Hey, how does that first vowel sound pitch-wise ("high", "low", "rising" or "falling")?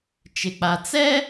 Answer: low